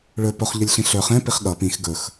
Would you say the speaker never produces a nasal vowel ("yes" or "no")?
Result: no